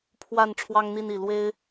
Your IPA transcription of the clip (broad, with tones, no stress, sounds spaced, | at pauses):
pʰ w a˥˨ n ʈ͡ʂʰ w ɑ˦ ŋ n̪ i˥˨ n i˨˩ l w e˦ ɪ̯